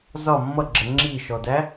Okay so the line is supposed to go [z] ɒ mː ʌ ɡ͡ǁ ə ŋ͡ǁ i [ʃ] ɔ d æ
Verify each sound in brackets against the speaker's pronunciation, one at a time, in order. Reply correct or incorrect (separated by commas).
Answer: correct, correct